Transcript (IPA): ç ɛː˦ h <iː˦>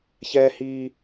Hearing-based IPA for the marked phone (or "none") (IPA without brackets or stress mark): iː˦